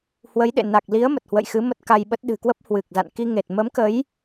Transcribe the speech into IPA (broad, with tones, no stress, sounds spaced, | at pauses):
h w ə˨˦ j ɗ ḛ˧˨ n a˨˩ k̚ l i˨˦ ə̯ m ə˨˩ t̚ h w ə̰˧˨ j x ɨ˨˦ m ə˦˥ t̚ k a˧ j ɓ ə˦˥ t̚ ɗ ɨ̤˨˩ k w ə˦˥ p̚ h w ɨ˨˩ k̚ z a̰˧˨ n k i˧ ŋ e˨˩ t̚ m ə˨˦ m k ə˨˦ j